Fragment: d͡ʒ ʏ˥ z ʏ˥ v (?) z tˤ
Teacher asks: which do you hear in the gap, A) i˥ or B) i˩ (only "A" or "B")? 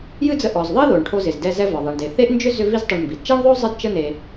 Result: A